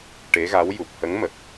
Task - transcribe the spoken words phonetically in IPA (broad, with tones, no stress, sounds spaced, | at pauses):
ʈ e˧˥ ɣ a˧˥ w j u˨˩ p̚ h ə˧˥ ŋ m ə˨˩ k̚